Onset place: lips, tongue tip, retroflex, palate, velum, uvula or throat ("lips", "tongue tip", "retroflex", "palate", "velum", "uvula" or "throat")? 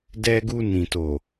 tongue tip